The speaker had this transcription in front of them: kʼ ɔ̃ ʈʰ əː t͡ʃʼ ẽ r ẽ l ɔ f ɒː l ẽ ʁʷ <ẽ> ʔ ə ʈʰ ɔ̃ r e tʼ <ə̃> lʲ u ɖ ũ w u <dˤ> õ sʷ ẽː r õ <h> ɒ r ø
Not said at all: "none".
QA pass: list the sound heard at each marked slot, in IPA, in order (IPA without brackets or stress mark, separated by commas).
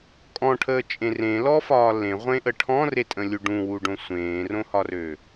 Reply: ẽ, ə̃, ɖ, h